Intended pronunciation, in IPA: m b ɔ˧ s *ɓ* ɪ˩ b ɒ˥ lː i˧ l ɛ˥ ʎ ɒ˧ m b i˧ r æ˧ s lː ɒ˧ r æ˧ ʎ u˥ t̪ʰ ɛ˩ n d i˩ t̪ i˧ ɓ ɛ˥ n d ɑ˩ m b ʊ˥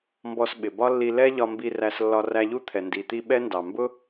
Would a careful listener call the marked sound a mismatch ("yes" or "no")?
no